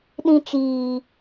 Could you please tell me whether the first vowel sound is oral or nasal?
nasal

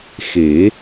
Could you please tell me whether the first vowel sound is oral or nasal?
oral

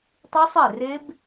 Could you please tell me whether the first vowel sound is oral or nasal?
oral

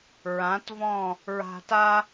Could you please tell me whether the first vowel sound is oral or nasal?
nasal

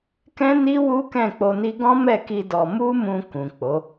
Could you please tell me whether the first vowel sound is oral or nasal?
nasal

